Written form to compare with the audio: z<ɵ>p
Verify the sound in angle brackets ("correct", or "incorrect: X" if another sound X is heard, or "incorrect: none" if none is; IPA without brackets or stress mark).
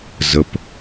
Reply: incorrect: ə